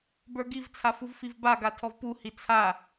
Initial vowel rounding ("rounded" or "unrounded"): unrounded